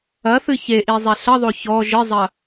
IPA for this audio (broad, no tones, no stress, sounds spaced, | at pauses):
ɐ θ ɨ ç e ʔ i zˤ ɛ ɬ ɐ ðˤ o ç ɔ ʒ ɘ zˤ ɐ